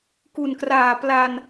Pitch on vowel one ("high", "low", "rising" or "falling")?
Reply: low